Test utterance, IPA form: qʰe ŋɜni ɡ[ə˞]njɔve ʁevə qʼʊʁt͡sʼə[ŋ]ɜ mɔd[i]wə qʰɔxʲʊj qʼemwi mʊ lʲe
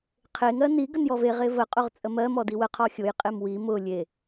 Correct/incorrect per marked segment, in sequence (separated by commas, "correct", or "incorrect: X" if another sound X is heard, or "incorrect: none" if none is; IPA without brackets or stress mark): incorrect: ə, incorrect: m, correct